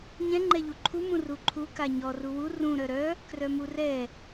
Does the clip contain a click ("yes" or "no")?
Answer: yes